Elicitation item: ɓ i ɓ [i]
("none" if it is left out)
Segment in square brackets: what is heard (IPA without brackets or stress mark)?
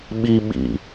ḭ